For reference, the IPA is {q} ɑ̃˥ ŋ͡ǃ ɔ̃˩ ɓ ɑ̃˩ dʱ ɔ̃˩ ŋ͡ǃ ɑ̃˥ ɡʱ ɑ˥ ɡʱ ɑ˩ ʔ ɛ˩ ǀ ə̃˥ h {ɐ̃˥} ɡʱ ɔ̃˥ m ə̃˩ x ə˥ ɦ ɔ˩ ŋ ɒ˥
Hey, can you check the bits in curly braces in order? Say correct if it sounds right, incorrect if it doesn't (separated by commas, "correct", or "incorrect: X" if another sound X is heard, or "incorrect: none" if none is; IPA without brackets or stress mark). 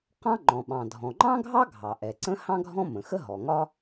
correct, incorrect: ɑ̃˥